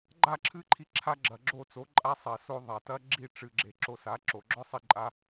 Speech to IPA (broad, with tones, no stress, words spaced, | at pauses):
ɡ͡ǃa˦˨ǁʰɨ˧ǃʰi˧ ǁʰa˦ɡ͡ǁɐ˨ɡ͡ǁo˦˨ t͡so˨˦ǃʼa˦sˤɛ˨so˧ ðˤa˨tɐ˦ ɡ͡ǁi˦˨ʈ͡ʂɨ˨ɡ͡ǁe˨ ǁo˧ sa˨˦ǁo˨ɡ͡ǁɔ˦ sˤi˦ǃʼa˦